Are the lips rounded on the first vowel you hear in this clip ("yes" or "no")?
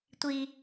no